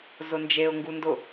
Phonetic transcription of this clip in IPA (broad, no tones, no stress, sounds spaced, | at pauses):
z ʊ n d͡ʒ e ʊ̯ ŋ ɡ u n d ʊ